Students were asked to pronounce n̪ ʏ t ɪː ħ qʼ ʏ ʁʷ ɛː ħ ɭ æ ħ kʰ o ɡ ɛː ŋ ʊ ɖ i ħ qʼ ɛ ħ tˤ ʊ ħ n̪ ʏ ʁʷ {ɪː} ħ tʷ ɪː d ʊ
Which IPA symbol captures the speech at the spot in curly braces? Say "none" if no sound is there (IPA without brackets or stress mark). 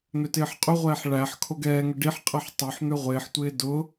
ɪː